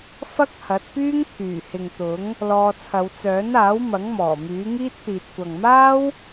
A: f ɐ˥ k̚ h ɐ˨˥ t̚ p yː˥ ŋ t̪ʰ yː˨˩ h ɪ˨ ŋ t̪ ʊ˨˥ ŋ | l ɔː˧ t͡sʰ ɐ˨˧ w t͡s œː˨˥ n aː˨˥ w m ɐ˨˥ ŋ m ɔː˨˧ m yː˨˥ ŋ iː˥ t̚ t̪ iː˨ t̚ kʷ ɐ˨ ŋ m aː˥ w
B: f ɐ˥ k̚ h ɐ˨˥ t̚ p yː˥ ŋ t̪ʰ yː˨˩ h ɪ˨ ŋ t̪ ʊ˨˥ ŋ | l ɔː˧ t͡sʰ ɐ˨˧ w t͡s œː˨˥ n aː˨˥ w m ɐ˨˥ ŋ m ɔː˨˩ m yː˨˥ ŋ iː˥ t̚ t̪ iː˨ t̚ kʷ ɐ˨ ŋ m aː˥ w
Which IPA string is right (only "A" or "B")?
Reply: B